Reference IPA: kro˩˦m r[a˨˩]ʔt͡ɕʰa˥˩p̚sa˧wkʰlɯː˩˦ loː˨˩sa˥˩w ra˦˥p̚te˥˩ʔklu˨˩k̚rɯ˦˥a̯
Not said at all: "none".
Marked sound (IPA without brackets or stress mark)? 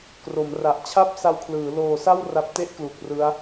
a˨˩